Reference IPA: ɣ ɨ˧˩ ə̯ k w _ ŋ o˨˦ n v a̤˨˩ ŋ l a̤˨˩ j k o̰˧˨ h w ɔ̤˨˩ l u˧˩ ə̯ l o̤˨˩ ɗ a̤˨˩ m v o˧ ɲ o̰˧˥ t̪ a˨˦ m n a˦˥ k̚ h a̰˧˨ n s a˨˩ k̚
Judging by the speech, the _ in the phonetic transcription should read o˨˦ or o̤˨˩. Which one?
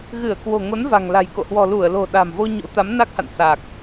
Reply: o̤˨˩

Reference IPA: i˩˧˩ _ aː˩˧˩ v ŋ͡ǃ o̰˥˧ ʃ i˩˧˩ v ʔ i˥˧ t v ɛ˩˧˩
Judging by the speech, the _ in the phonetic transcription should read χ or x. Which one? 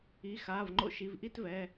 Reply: x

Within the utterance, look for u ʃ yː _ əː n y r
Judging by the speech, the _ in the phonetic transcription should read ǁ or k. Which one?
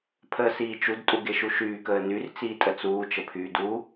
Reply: k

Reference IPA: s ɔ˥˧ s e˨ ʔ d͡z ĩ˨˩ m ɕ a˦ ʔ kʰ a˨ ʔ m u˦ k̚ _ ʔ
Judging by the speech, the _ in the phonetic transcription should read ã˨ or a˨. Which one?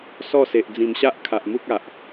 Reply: a˨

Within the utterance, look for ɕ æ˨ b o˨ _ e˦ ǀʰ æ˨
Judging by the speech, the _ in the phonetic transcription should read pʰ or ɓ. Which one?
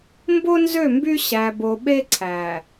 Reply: ɓ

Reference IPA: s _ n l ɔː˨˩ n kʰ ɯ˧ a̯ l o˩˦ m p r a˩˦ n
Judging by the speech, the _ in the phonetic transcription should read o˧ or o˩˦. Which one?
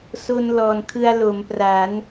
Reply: o˧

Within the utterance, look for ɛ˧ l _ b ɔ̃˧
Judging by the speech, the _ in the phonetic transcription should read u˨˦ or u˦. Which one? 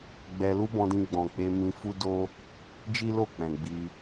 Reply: u˦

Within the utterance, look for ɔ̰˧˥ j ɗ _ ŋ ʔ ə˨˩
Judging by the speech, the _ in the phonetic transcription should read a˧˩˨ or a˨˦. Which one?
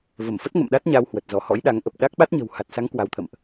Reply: a˨˦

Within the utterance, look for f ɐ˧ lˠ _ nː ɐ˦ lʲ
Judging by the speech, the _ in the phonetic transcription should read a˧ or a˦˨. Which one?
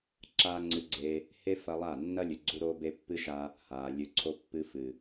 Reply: a˦˨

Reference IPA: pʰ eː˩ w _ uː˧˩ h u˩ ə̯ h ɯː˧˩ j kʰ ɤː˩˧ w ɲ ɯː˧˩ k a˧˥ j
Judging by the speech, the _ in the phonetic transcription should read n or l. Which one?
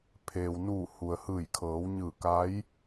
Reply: n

